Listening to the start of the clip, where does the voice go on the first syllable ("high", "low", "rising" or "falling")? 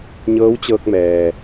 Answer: rising